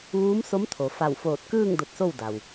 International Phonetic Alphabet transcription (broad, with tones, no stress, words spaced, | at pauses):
ʋuː˧˥mso˧˥mt̪ʰo˩ fa˧˩wfoː˧˩t̚kɯː˥˨ŋ do˧t̚so˥˨wda˩w